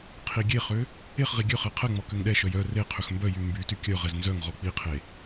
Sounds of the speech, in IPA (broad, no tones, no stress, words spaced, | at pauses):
qʰiɡʲeχø | eχʁi ɡʲøχɛ qʰɛŋ͡mɔ køŋɗɛʃœj œ re qʰʏxmbœjy mbyty kʲœʁɛz nzœŋʁɔ k͡piqʰe